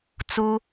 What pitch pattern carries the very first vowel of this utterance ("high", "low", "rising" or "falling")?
high